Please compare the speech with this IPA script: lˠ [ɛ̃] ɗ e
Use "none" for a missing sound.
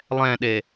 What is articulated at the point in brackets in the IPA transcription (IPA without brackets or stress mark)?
ɛ̃